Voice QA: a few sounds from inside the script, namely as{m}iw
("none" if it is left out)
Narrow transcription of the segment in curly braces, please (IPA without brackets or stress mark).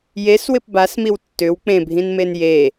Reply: m